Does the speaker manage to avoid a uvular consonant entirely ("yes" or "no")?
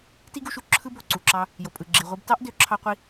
no